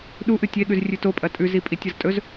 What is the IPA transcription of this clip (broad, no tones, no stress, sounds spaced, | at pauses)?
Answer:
ɗ u ʔ ɨ tʲ e ɠ ʉ z rʲ ʉ t o pʼ ɐ tʼ ʉ z i pʼ i tʲ ɐ z tʼ ɵ z